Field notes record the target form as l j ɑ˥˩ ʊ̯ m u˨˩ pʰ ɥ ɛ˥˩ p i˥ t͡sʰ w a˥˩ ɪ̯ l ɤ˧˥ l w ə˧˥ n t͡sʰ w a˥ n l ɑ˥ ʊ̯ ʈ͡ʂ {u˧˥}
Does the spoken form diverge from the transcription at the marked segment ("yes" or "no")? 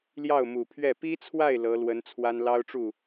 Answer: yes